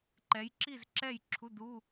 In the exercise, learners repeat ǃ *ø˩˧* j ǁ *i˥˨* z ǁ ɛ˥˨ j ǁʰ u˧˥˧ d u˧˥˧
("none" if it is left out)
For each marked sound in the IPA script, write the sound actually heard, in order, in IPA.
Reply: ɛ˩˧, i˥˨

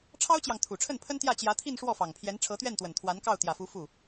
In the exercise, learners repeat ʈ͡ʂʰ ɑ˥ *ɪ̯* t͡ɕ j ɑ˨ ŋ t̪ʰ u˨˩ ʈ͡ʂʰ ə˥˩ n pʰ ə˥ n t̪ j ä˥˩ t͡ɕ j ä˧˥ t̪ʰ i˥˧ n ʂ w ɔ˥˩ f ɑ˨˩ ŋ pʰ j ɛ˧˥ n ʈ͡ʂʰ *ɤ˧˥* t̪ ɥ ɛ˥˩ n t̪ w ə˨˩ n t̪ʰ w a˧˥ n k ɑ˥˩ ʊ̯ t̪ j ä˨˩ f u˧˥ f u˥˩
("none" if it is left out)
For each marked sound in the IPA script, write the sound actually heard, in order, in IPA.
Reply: ʊ̯, ɤ˧˥

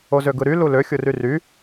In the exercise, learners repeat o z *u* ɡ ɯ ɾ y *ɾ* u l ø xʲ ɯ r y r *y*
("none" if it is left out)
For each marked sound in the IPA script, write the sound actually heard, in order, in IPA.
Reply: ø, l, y

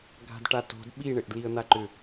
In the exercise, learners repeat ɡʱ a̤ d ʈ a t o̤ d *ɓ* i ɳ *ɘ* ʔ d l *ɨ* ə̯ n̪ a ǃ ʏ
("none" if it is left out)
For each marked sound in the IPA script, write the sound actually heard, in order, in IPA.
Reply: ɓ, ɘ, i

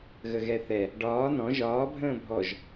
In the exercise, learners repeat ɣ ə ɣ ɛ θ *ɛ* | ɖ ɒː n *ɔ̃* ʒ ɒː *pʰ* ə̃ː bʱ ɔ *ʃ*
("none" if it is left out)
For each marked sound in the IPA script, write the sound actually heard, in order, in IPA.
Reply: ɛ, ɔ̃, bʱ, ʒ

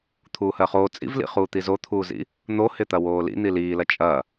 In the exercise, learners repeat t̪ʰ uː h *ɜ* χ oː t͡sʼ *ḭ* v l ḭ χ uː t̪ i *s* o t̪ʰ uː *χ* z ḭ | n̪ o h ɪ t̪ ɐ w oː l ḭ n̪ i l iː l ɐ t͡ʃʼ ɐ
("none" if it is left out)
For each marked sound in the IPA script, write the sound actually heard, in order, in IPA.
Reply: ɜ, ḭ, z, none

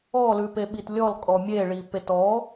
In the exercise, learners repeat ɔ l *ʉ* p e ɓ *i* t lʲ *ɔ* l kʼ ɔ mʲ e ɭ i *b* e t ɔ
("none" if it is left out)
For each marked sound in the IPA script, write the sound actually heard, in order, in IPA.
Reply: ʉ, i, ɔ, p

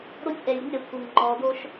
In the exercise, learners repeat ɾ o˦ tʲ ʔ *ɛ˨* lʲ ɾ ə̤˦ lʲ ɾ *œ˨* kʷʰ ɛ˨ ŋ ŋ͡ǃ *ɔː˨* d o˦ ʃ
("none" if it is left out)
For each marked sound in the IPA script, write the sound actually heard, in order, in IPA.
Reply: ɛ˨, œ˨, ɔː˨

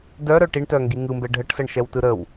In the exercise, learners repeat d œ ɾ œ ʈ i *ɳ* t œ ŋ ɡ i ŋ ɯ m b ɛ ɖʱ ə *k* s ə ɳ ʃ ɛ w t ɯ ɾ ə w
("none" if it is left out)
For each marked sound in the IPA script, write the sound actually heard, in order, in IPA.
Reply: ɳ, ʈ

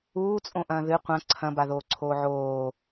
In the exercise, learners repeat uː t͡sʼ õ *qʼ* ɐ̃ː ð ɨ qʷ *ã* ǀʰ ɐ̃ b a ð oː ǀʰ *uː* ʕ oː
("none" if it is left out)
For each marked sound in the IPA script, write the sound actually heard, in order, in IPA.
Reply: ʔ, ɐ̃, oː

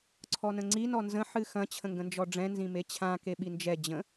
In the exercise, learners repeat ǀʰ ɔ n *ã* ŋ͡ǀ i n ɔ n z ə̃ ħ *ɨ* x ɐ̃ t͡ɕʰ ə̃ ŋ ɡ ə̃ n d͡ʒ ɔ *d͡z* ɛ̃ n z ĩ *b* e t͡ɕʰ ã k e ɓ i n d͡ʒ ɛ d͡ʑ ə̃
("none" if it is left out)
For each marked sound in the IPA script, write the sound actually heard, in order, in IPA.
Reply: ə̃, ɨ, ɖ͡ʐ, m

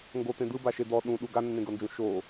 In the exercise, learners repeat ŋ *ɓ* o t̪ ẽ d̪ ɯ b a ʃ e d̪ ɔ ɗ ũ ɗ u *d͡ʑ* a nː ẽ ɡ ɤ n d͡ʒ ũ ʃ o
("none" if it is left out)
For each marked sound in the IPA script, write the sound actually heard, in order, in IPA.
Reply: ɡ, ɡ

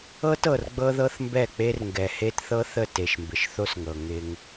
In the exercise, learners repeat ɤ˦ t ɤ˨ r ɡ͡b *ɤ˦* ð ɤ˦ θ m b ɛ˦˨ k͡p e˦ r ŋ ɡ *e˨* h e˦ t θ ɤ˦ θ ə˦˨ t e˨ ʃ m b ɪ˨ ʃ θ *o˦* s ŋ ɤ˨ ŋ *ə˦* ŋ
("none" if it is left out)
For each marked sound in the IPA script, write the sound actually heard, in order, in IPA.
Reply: ɤ˦, ɛ˨, o˦, ɪ˦

